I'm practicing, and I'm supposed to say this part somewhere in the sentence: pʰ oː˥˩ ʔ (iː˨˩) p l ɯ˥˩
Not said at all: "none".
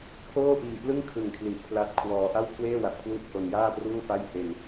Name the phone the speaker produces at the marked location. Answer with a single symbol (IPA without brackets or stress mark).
iː˨˩